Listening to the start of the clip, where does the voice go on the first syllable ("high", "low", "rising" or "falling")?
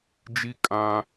high